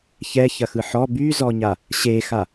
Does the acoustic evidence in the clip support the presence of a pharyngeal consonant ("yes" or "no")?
yes